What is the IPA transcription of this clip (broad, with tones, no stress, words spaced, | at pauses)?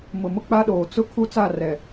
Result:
mʊ˨mʊ˦k͡pa˦ɗoː˨ t͡sʊ˦ kʰu˦t͡sa˦˨rɛ˨